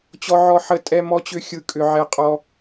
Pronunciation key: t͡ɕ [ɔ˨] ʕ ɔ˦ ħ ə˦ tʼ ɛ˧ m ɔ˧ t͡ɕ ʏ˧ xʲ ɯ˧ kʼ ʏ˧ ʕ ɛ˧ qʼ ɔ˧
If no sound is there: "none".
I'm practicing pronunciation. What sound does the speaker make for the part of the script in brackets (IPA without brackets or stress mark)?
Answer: ɔ˦